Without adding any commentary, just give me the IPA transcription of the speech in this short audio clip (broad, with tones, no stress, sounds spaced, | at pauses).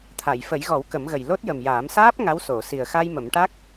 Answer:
t̪ʰ a˨˩˨ j f ə˨˩˦ j ɣ ɔ˨˩˦ w k ə˨˩˦ m ɣ ə˨˩ j l o˦˥ t̚ j ə˨˩ m j aː˨˩˦ m s aː˦˥ p̚ ŋ a˧˥ w s o˨˩˨ s i˨˩ ə̯ x a˧ j m ə˨˩˦ m ʈ a˦˥ k̚